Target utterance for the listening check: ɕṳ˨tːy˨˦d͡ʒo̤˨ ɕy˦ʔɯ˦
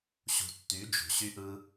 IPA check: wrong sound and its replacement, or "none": none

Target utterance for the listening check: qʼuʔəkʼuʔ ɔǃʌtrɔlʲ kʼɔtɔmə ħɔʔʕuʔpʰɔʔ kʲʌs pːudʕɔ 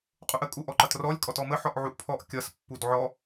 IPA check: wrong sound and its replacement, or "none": none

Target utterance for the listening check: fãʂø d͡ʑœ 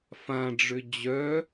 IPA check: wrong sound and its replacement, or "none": ʂ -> ɖ͡ʐ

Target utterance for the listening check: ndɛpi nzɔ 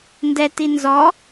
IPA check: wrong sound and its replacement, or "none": p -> t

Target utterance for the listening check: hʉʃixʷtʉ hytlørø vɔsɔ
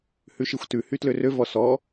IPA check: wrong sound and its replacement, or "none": none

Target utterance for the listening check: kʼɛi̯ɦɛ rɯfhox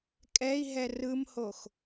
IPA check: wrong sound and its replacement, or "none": f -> m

